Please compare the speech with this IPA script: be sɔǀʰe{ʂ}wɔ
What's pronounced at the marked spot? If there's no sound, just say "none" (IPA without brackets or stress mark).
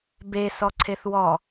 θ